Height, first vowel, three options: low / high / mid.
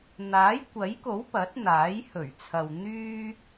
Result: low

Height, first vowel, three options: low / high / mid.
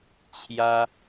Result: low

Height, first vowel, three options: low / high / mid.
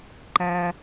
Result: low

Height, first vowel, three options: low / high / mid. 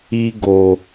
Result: high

